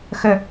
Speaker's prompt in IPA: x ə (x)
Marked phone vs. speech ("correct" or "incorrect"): incorrect